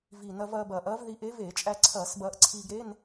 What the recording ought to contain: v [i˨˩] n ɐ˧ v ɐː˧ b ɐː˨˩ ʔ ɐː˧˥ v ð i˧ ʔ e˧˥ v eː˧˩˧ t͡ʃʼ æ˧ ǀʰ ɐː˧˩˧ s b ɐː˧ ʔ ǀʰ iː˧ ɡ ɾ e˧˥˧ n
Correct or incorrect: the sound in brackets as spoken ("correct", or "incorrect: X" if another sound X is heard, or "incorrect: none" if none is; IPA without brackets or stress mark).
correct